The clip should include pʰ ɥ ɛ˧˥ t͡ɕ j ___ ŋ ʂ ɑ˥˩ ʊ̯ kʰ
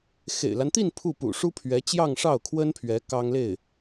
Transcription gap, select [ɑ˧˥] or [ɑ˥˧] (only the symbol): ɑ˥˧